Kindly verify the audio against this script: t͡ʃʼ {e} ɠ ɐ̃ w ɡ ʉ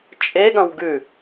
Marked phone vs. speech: correct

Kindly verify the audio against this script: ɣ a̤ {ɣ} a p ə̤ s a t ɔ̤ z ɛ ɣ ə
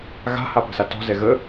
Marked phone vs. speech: incorrect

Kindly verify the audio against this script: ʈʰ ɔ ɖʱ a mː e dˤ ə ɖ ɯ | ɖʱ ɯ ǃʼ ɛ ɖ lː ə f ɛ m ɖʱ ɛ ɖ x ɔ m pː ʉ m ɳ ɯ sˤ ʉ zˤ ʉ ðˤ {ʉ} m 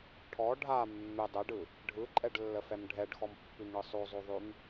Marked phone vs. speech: correct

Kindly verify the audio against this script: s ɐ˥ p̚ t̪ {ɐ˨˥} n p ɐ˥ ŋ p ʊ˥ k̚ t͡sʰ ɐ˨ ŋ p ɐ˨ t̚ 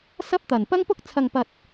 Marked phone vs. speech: incorrect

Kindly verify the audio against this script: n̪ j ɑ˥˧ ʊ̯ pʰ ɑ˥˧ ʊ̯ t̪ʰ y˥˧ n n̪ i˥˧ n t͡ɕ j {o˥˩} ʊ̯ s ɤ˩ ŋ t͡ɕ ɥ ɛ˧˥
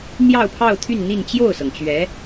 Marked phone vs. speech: correct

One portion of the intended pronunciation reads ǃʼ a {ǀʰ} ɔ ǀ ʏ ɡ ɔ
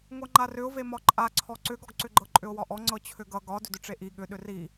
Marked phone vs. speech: correct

